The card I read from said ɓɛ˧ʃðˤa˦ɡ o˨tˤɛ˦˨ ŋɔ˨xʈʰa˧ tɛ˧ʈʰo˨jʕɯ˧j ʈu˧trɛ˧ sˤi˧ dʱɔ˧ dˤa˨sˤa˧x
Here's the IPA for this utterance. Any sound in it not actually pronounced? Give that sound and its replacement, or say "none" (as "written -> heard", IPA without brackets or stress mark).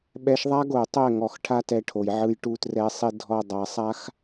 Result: none